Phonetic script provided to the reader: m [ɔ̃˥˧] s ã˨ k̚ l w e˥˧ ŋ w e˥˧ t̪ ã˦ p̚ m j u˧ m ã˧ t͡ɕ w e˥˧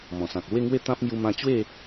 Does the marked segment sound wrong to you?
yes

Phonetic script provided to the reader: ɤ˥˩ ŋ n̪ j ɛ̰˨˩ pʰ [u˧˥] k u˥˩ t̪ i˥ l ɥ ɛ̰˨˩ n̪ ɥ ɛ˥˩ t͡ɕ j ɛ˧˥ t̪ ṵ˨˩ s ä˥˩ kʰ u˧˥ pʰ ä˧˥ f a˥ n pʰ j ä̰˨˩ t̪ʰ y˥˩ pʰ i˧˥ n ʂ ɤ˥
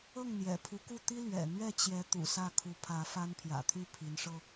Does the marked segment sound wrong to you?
no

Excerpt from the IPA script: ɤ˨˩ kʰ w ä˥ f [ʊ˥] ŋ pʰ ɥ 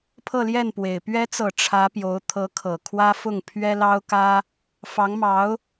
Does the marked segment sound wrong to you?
yes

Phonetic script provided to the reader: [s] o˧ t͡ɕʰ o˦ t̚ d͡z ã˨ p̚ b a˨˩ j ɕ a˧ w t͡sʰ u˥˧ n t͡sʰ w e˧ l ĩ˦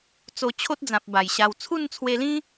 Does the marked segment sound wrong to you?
yes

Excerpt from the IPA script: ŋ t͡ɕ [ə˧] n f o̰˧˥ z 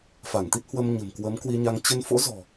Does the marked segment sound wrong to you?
no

